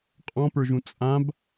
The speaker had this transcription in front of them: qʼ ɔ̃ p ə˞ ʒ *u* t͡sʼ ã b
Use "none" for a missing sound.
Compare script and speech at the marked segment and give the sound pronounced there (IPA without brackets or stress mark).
ũ